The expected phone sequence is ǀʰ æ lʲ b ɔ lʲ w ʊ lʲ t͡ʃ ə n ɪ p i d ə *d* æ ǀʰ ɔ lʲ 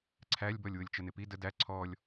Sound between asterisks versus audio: correct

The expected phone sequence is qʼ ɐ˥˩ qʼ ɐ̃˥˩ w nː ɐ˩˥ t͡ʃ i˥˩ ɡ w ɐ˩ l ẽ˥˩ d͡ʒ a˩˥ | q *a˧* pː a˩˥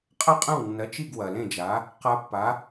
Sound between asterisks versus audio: correct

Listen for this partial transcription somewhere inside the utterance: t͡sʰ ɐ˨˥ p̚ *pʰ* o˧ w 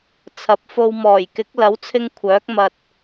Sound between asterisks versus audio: incorrect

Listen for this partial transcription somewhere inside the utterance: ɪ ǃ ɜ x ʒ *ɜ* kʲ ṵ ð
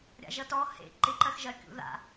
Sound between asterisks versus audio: correct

